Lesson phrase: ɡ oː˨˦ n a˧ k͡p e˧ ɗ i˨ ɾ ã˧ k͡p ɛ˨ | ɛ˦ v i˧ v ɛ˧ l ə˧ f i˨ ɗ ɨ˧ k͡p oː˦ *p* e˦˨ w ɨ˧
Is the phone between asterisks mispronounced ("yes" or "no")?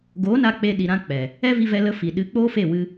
yes